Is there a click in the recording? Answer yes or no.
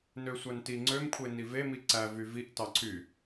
yes